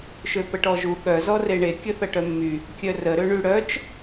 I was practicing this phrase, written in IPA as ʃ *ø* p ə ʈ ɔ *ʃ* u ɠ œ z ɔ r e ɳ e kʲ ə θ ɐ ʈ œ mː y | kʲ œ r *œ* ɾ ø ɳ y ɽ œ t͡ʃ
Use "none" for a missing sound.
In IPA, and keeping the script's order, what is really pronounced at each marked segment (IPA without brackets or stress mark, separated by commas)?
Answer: ø, ʒ, ə